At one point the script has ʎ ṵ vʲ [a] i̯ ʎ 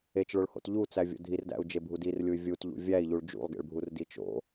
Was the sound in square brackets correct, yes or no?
no